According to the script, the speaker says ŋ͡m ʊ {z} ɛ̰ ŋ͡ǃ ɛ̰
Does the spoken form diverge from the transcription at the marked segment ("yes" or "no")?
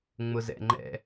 no